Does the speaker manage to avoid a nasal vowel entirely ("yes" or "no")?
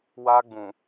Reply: no